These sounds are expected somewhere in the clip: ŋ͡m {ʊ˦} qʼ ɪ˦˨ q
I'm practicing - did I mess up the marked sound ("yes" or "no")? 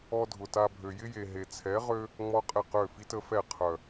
yes